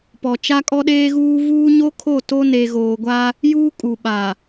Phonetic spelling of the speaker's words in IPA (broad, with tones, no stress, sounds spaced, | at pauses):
p ɔ˨ t͡ʃ a˦ kʼ ɔ˦ ɗ eː˦ ɣ uː˦ v uː˦ ɲ o˦ kʰ o˦˨ t o˦ n e˨ ɣ oː˨ ɡʷ a˦ | j uː˦ kʼ u˨ ɓ a˨